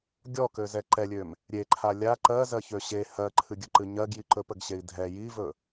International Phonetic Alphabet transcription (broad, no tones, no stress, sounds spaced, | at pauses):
ɡʲ ɔ k ø z ɛ ǃ ɛ lʲ ø m | ɾʲ e ǃʰ a lʲ a ǃ ɜ z ɜ ç ø ɕ e h ɜ ǃʰ ɨ ɡʲ ə ǃ ɨ ɲ ɜ ɡ j i ǃ ɵ p ə ɡ ɕ e i̯ dʱ ɛ j i v ɵ